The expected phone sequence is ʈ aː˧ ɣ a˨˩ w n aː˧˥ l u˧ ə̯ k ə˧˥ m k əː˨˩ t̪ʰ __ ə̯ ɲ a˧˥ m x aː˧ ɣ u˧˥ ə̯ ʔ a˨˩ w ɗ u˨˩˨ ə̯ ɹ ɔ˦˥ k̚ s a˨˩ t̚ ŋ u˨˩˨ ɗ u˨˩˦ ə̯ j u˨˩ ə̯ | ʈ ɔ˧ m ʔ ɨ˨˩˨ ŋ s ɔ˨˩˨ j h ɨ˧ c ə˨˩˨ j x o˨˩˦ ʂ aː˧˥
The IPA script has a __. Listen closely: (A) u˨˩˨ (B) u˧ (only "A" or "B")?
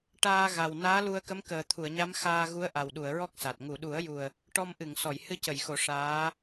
A